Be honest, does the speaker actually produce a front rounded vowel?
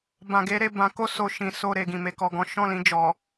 no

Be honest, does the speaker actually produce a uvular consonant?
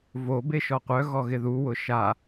yes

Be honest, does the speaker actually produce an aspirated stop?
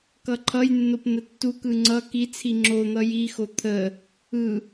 yes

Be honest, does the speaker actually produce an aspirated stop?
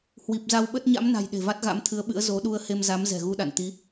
yes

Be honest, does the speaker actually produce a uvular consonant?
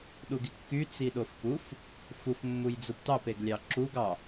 no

